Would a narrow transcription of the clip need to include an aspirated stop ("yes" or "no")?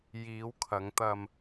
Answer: yes